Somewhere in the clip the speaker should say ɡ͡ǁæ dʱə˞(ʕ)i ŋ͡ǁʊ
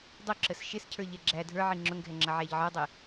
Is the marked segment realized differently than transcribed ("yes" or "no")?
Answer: no